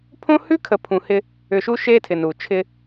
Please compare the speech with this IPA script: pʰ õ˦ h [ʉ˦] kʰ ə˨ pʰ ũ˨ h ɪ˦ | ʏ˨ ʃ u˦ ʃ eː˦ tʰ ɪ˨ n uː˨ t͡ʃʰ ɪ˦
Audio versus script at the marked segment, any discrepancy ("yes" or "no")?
no